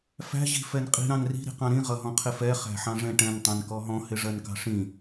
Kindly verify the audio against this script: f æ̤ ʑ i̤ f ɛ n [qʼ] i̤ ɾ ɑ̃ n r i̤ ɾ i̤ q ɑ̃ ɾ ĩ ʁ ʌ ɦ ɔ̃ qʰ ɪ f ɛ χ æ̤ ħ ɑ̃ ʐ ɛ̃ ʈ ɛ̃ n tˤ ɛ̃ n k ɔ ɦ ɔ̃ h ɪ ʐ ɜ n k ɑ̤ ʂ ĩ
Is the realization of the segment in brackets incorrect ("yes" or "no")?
no